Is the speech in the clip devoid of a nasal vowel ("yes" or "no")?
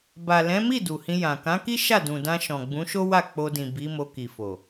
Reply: no